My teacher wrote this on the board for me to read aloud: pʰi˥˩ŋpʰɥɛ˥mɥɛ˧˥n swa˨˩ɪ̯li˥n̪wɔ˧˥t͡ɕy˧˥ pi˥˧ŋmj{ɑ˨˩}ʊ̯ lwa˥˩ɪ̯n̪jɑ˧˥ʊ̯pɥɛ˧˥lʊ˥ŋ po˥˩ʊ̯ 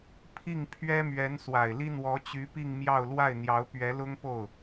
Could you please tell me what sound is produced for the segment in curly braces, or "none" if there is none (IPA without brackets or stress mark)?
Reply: ɑ˥˧